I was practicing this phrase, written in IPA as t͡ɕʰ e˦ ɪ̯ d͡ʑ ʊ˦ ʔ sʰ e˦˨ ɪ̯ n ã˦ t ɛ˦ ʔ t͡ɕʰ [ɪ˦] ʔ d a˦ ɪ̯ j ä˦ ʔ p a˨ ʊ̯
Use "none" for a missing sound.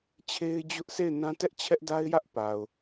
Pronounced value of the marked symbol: ɛ˦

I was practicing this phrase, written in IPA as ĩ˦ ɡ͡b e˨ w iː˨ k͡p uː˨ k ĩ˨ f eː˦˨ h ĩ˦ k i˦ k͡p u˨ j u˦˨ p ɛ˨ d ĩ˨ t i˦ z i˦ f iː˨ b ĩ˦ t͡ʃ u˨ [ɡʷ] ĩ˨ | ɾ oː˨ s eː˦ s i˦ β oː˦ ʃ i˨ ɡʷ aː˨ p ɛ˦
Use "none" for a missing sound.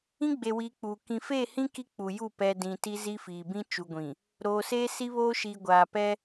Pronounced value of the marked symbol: ɡʷ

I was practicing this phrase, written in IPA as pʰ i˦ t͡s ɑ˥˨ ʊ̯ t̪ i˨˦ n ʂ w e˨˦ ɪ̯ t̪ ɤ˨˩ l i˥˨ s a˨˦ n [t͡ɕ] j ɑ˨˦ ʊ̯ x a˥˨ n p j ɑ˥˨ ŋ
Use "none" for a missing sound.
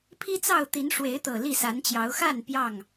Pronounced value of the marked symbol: t͡ɕ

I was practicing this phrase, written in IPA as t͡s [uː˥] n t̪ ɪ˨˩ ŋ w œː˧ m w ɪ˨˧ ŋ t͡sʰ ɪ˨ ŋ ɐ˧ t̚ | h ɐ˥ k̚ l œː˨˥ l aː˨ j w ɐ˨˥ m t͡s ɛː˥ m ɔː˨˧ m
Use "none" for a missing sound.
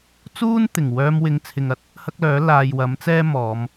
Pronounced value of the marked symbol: uː˥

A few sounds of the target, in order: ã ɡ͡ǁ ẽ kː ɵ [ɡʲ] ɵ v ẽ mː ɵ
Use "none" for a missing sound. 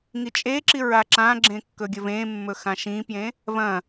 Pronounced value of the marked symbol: ɡʲ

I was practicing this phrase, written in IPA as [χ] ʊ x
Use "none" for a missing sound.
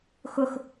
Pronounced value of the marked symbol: x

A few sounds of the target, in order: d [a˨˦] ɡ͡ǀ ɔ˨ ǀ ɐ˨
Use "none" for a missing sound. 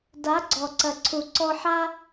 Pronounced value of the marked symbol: a˨˦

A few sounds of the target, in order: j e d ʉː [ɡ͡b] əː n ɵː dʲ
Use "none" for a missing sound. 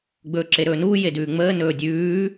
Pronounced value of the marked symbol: ŋ͡m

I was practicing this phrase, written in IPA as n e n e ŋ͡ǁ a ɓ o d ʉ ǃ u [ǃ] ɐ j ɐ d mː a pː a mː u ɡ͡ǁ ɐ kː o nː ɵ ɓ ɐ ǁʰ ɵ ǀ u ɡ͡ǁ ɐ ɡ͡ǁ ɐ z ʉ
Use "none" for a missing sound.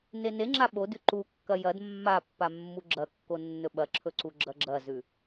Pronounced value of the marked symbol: kː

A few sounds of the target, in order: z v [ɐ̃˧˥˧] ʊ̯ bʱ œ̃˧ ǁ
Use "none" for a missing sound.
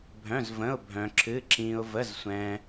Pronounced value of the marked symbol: ə̃˧˥˧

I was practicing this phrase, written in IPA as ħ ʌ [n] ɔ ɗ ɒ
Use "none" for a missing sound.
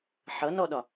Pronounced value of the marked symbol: n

